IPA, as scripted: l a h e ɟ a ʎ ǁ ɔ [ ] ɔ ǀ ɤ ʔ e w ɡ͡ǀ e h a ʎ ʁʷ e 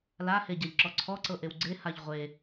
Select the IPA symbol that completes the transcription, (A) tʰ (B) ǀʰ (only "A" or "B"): B